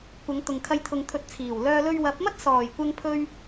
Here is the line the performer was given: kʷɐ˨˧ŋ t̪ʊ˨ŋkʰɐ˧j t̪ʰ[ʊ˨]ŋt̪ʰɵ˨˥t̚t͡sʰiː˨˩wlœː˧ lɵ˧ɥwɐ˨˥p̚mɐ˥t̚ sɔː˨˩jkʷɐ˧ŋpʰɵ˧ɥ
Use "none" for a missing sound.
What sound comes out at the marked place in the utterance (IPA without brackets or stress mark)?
ʊ˨